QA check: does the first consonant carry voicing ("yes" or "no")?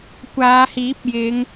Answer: no